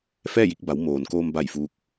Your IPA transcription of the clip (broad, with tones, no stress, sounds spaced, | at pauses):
f ɛː˥˨ j i˧ k̚ b a˩˧ w m oː˩ n k oː˧ m b a˧˩ j f uː˧˥ k̚